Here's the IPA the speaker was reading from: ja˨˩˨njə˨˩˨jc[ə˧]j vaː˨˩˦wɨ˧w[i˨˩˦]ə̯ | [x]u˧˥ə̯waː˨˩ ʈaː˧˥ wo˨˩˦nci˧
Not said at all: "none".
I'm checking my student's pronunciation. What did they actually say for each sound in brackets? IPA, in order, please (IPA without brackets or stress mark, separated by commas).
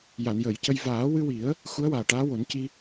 ə˧, i˨˩˦, x